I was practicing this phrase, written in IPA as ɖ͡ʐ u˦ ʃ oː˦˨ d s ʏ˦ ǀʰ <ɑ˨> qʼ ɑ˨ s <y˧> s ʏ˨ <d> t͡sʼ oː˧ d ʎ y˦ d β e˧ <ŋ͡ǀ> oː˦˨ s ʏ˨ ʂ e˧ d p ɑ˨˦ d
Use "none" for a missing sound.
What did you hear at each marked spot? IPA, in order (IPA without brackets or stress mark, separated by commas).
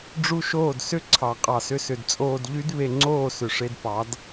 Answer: ɑ˨, ʏ˧, d, ŋ͡ǀ